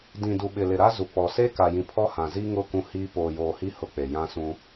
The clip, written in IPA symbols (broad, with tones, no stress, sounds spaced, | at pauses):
d ĩ˨ d u˨ ɓ ɪ˨ l ɪ˨ ɾ a˦ z u˨ k͡p ɔ˨ s e˦ k a˨ j ĩ˨ pʰ ɔ˦ h ã˨ z i˦ ŋ ʊ˦˨ k ũ˦ h iː˦ p oː˨ j oː˨ h i˦ h ʊ˦ k͡p e˨ j ã˦ s ũ˦